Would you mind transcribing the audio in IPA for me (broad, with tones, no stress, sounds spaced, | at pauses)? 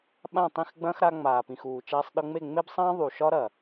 ɓ ã˦˨ tˤ ĩ˦˨ x ɡ͡b ɐ̃ː˦ x ɾ a˧ ŋ͡m aː˨ p ĩ˨ x uː˨ t͡ʃ aː˧ sˤ ɗ ɤ˧ ŋ͡m e˦˨ ŋ͡m e˦ b sˤ ɐ̃ː˦ ðˤ u˨ ʃ ɒ˦ ɾ ɐ˨